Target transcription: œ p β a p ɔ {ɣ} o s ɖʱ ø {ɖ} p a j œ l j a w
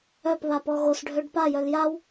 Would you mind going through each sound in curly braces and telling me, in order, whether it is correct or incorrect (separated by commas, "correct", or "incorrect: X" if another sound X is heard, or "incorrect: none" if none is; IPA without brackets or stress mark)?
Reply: correct, correct